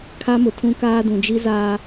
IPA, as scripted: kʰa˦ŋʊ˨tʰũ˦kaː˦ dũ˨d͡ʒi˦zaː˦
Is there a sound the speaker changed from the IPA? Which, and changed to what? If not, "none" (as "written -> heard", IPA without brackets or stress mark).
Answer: ŋ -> m